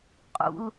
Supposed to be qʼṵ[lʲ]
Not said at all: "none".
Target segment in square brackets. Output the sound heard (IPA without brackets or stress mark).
l